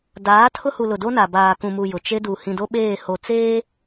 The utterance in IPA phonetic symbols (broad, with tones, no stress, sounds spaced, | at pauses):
d aː˨˦ tʰ ʊ˦ h u˨ l ʊ˨ d o˦ n a˨ b aː˨ k ũ˨ m u˨ j ʊ˨ t͡ʃ e˦ d u˨ h ĩ˨ d o˦ ɓ eː˦˨ h o˨ t͡s eː˦